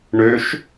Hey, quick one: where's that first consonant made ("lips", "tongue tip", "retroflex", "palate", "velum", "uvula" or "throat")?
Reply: retroflex